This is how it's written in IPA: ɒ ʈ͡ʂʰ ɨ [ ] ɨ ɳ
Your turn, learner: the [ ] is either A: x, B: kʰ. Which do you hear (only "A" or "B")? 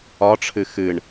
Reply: A